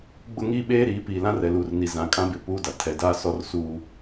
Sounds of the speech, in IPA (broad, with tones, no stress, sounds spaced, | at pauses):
ɡ͡b ʊ˦ ŋ iː˦ ɓ eː˦ ɾ iː˨˦ p iː˨ l ã˦ r ɛ˨ l uː˨ r n i˨ z ã˨ kʼ ã˦ b ɪ˨ p u˦ d a˨ tʰ ɛ˨ d aː˦ s ɔ˦ r s uː˦